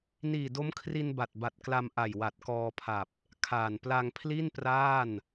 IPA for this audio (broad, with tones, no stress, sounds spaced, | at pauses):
n iː˨˩ d o˦˥ m kʰ r i˧ n b a˨˩ t̚ b a˨˩ t̚ k l a˧ m ʔ a˨˩ j w a˨˩ t̚ k ɔː˧ pʰ a˨˩ p̚ | kʰ aː˨˩ n p l a˧ ŋ pʰ l i˥˩ n p r aː˥˩ n